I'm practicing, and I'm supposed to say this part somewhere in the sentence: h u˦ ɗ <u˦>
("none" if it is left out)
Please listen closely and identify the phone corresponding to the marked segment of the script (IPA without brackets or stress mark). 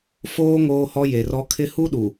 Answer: u˨